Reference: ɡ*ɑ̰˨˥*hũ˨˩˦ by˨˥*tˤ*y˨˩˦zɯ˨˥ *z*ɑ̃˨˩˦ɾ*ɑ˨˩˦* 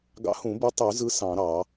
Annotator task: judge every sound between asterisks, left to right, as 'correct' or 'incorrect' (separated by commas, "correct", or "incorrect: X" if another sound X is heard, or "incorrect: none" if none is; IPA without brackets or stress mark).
correct, correct, incorrect: s, correct